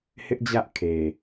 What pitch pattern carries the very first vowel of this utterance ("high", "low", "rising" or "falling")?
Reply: high